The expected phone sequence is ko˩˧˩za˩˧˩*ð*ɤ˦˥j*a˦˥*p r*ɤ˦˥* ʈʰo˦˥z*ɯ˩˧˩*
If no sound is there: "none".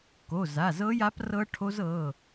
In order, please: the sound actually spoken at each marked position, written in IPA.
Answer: z, a˦˥, ɤ˦˥, ɤ˩˧˩

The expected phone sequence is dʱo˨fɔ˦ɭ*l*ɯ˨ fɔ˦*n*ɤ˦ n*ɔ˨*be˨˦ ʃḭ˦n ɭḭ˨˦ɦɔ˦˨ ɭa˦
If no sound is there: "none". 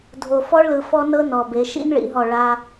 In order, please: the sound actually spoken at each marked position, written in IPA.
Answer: l, n, ɔ˨

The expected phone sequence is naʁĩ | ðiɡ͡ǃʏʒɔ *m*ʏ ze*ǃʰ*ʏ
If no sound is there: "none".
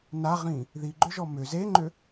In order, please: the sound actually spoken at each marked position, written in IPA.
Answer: m, ŋ͡ǃ

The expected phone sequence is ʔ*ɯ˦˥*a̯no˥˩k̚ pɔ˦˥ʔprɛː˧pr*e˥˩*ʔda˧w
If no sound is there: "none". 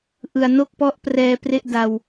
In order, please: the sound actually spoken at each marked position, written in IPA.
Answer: ɯ˨˩, e˥˩

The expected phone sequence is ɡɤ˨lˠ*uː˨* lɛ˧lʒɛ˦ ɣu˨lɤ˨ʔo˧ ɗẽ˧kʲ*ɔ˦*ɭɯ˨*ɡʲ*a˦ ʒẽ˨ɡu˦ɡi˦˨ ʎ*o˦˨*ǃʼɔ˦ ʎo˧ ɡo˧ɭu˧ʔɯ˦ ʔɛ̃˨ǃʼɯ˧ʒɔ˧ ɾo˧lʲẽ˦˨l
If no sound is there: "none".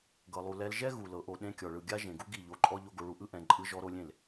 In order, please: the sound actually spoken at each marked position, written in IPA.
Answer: u˨, ɔ˨, ɡʲ, o˧

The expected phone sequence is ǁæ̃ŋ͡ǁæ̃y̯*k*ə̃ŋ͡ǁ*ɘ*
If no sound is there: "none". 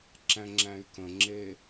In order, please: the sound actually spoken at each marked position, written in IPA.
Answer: k, e

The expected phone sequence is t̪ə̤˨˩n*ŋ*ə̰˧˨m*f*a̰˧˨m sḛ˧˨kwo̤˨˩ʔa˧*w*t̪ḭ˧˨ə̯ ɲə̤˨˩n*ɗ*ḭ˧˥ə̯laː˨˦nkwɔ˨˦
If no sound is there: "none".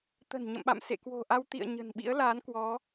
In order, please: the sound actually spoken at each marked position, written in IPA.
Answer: ɲ, ɓ, w, ɓ

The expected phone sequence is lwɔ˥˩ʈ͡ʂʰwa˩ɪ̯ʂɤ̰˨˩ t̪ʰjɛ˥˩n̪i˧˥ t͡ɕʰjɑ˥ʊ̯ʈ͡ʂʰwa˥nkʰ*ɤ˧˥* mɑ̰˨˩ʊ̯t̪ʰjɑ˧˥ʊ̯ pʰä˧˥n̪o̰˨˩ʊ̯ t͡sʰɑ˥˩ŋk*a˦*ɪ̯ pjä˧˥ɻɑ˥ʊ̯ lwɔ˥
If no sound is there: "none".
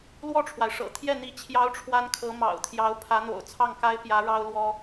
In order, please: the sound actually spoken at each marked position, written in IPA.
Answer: ɤ˧˥, a˥

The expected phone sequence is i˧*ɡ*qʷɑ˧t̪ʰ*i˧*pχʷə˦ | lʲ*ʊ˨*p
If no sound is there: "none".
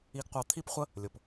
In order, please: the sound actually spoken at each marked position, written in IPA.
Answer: ɡ, i˦, ʊ˨

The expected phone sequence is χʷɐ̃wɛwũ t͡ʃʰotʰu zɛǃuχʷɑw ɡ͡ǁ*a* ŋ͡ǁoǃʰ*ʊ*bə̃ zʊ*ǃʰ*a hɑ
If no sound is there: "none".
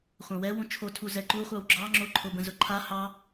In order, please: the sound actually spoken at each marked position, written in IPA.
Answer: ɑ, ʊ, ǃʰ

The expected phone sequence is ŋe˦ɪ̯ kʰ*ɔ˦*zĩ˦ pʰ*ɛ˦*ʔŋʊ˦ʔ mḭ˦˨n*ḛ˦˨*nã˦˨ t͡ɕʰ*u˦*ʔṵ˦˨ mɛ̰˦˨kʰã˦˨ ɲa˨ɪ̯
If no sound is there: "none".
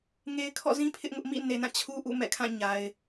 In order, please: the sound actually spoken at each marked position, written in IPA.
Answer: ɔ̰˦˨, ɪ˦, e˨, u˦

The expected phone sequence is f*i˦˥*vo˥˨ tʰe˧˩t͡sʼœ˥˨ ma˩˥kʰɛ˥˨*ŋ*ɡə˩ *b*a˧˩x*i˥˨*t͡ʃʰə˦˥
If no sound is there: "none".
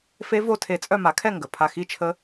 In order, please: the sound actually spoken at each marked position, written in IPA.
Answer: e˦˥, ŋ, pʰ, i˥˨

